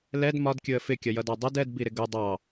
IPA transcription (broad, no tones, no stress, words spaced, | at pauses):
lɛd mɒdkʲʊə̯ fɪkʲʌjʌdɑ dˤʌd ɛdbiɾɪ ɡʊ dˤɑ